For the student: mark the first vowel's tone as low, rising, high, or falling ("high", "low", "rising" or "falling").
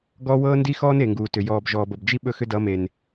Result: high